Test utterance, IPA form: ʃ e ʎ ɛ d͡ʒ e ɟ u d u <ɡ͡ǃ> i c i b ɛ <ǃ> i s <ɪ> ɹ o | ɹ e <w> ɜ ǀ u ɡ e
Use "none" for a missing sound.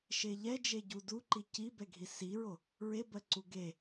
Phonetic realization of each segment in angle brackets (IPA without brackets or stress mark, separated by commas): ǃ, ɡʱ, i, b